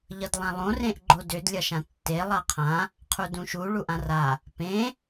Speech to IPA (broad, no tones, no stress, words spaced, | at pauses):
ʎʌdlˠãlˠõ rẽʔɡ͡ǃodʏd lʲʌʃãtːe lˠaqʰã | qʰudũʃu ɭuʔãra | pẽ